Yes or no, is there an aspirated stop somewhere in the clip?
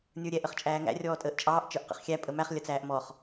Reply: no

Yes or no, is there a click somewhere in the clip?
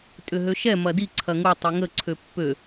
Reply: yes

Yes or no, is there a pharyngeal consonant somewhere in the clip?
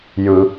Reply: no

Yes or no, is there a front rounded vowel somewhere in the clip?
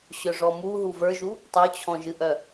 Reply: yes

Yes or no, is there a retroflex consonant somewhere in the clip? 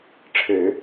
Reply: yes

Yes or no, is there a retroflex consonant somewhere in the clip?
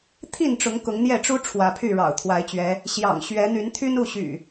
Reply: yes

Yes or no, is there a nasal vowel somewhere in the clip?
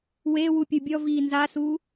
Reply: no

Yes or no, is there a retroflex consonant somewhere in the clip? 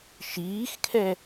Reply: no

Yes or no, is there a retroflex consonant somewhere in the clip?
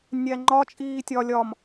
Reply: no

